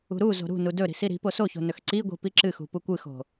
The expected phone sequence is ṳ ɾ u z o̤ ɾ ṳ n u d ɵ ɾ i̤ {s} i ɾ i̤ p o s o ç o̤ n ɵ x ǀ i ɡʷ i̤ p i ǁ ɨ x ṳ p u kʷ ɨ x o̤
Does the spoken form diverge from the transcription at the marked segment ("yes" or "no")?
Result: no